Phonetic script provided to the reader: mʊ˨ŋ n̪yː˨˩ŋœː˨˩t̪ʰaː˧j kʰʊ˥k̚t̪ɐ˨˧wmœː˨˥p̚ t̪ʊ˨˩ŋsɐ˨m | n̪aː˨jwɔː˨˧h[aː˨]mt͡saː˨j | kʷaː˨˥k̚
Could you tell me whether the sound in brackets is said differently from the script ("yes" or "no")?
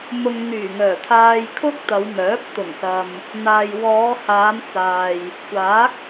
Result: yes